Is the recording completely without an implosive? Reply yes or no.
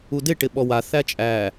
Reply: no